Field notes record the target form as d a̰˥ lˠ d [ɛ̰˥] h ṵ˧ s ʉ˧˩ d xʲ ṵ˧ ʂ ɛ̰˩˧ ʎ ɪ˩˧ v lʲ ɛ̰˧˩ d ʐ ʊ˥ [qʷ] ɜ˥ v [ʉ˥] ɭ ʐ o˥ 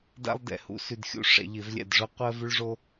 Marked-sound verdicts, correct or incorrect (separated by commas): incorrect, correct, correct